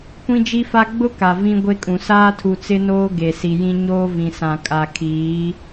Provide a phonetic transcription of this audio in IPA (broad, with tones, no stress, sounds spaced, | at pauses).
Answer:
kʷ ĩ˦ d͡ʒ i˦ f a˦ ɡ͡b ʊ˦ k a˨ v ĩ˦ ɡʷ e˦ kʼ ũ˨ s aː˦ tʰ u˨ t͡s ɪ˦ n oː˦ ɡ e˨ s i˨ j ĩ˦ ɲ oː˦ v ĩ˨ s ã˨ kʼ a˨ kʰ iː˨˦